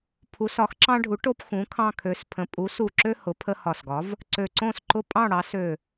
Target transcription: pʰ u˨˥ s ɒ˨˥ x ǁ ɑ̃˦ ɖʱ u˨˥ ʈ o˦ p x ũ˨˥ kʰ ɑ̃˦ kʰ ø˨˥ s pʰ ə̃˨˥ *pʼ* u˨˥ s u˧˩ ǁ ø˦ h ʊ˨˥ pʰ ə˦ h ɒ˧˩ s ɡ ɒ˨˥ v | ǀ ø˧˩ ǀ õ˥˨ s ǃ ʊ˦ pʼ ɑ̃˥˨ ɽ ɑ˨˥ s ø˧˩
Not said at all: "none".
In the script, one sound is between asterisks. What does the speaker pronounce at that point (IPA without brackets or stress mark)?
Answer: pʼ